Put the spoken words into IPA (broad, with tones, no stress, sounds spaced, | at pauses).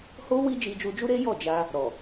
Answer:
h o˦ w i˦ d͡ʒ i˧ d͡ʒ u˧ d͡ʒ u˦ ɾ e˦ j ɔ˦˨ d͡ʒ a˧ | ɾ ɔ˨